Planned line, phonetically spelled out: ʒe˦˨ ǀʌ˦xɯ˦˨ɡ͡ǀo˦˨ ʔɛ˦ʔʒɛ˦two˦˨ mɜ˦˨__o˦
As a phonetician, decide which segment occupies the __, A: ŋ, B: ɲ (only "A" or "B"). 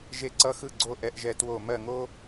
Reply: A